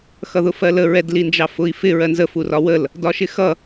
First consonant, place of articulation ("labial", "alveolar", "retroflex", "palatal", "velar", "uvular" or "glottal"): velar